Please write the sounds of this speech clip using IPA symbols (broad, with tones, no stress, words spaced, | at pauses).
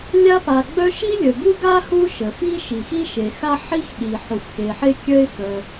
lʲa˥pa˩ɡ͡bœ˥ ʃi˥lʲə˩ɡu˥ɡa˥ hu˥ʃə˩fi˥ ʃi˩xi˥ʃe˩xa˥ ħi˥xɗi˩ ħu˩fxe˩ħe˥ kʲœ˥ɪ̯ fœ˩